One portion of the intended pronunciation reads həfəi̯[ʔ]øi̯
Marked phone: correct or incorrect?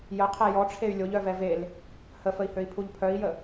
incorrect